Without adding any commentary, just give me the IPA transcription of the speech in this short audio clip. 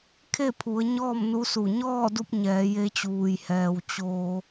kʰe˥˨pʰu˩˧ə̯ ɲɔː˥˨mnu˧˥su˧˩ ɲɔː˥˨du˧p̚ ɲɛː˩˧je˧t͡ɕuː˩jhɛː˩w t͡ɕoː˩

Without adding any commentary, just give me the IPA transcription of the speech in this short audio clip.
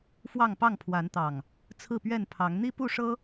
fwɑ˥˨ŋpɑ˥˨ŋpʰwa˨˦nt̪ɑ˨˩ŋ | t͡sʰɹ̩˥˨pɥɛ˥˨npʰɑ˨˦ŋ n̪i˦ pu˥˨ʂɤ˦

